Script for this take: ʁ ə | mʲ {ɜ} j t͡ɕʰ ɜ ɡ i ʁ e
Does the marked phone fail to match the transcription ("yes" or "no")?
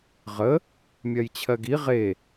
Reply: no